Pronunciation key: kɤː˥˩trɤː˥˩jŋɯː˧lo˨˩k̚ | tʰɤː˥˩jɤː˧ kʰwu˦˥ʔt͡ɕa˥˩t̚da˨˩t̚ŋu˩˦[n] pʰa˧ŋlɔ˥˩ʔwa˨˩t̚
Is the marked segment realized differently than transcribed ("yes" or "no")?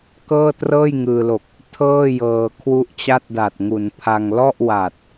no